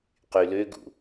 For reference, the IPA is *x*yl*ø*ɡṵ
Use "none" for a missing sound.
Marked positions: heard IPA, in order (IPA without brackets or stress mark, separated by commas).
q, ø